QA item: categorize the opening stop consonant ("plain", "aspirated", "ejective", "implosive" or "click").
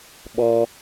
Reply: implosive